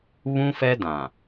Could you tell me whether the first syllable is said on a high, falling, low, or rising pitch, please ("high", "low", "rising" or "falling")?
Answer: high